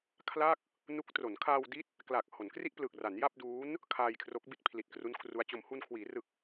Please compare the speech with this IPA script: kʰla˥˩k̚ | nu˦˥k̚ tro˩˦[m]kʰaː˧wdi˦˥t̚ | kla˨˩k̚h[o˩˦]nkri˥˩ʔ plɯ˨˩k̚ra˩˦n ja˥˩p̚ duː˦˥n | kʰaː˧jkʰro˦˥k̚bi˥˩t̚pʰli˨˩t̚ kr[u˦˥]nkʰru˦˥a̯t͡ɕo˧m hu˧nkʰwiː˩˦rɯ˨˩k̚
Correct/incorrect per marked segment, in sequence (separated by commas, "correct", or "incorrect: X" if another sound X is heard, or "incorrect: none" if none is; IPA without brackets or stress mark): incorrect: n, correct, correct